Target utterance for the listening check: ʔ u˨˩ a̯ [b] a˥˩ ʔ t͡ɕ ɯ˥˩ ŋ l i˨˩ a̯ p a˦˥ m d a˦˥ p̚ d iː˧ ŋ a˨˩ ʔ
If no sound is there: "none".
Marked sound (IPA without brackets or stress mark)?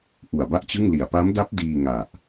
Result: b